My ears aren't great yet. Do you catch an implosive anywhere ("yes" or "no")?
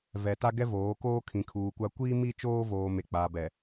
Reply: no